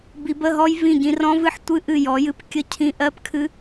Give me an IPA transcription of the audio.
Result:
b i˨˦ b ə˧˥˧ ɦ ɔ˦˥ j v ĩ˦˨ ɟ ĩ˨˦ r ɔ̃˦˥ v ɨ˦˥ ħ tʷ ɨ˦˥ ʔ ɨ˦˨ j ɔ˨˦ j ɨ˧˥˧ p kʲ ə˦˥ cʰ ĩ˦˥ ʔ ɜ˦˥ p kʰ ɨ˦˥

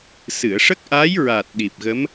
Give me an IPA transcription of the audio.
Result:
s ɨ˨˩˨ ə̯ ʂ ə˦˥ k̚ ʔ a˧˥ j ɹ a˨˩ t̚ ɗ i˨˩ p̚ ɣ ə˧˥ m

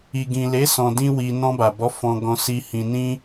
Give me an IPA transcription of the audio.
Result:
i˨ ɡ ĩ˨ l e˨˦ s ɔ̃˧ d ĩ˦ w i˧ n ɔ̃˧ b a˨ b ɔ˨˦ f ɔ̃˧ ɡ ɔ̃˧ s i˧ h ĩ˧ n ĩ˦

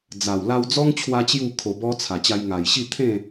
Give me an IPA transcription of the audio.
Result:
d͡z a˨˩ w l a˧ w d͡z ɔ˦ ŋ t͡ɕʰ w a˧ t͡ɕ j u˥˧ kʰ o˧ b ɔ˦ t͡sʰ a˨˩ t͡ɕ a˧ j ŋ a˨˩ j ɕ i˥˧ t̪ʰ ẽ˥˧

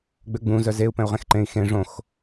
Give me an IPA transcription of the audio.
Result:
ɡ͡b ø ɡ͡b ũ z œ z e u̯ p ɛ̃ u̯ ʁ ẽ x ǃ ẽ i̯ x ẽ ʐ õ x

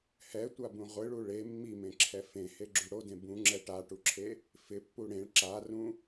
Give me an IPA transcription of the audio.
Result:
h ɛ tʷ a b ũ ʁʷ ɪ ɭ u ɭ e mː i m ẽ ǁʰ ɛ f ẽ h e ɡ͡ǁ u ɽ o d ẽ b ũ ŋ͡ǁ ɛ ʈ a ʈ u ǁʰ e | f ɪ pː u ɽ ẽ ɭ ǁ a r ũ

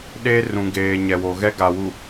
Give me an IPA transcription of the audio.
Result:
ɗ e˦ r ũ˨ ɡ eː˨ ɲ ɛ˨ w o˨ ɣ ɛ˦ ɡ a˨ w u˨

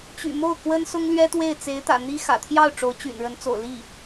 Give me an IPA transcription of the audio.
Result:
t͡ɕ y̰˨˩ m o˥˩ ʊ̯ k w ə˥ n s ʊ˥ ŋ l ɥ ɛ˥ t̪ w e˥˩ ɪ̯ t͡s e˧˥ ɪ̯ t̪ ä̰˨˩ n̪ i˥ x ä̰˨˩ t̪ʰ j ɑ˥˩ ʊ̯ ʈ͡ʂ o˧˥ ʊ̯ t͡ɕ y̰˨˩ n ɻ ə˧˥ n t͡s o̰˨˩ ʊ̯ l i˥˩

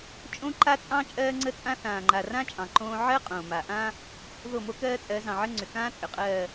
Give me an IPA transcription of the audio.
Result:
t͡ʃʼ õ˦ ǃ a˦ t͡sʼ ɑ̃˦ t͡ʃʼ ɜː˦ ŋ͡ǀ ə˦ t͡sʼ ã˦ θ ãː˨ ŋ͡ǃ a˨ r ã˦ t͡ʃʼ ɑ̃˨ ǃ õː˦ ʕ ɜ˦ qʼ õː˨ m a˨ ʔ ã˦ | ð o˦˨ m o˦ k ɜː˦ t͡sʼ ɜ˨˦ z ɑ̃˨ ʕ ə˦ ŋ͡ǀ ʏ˨ k ãː˦ t͡sʼ ʏ˨ qʼ ɜː˦˨

